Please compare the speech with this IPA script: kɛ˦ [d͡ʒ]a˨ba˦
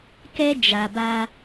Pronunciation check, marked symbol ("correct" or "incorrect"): correct